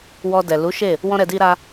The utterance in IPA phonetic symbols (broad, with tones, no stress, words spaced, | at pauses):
wɔ˧dɛ˨ lu˨˦ʃe˦˨ | wɔ̃˦ɾɛ˧di˦ɾa˦